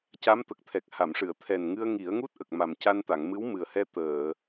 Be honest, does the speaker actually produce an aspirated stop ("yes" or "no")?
yes